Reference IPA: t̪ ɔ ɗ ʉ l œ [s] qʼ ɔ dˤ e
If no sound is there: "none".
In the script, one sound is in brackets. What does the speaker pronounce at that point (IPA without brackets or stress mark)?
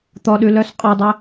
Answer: s